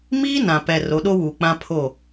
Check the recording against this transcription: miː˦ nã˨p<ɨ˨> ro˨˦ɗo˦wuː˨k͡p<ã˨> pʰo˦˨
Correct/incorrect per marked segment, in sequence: incorrect: ɛ˨, incorrect: ã˦

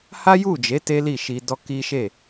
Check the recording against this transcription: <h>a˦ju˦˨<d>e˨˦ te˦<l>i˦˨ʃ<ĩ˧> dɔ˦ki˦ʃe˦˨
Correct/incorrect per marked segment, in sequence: correct, incorrect: d͡ʒ, correct, incorrect: i˧

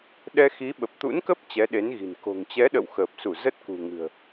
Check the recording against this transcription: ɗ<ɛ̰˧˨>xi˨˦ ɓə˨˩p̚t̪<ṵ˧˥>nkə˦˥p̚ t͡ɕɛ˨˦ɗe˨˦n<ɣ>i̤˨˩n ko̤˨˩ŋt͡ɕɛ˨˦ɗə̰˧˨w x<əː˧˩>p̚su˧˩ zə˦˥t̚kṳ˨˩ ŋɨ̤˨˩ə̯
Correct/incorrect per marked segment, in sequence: incorrect: ɛ˧, correct, correct, incorrect: əː˨˩

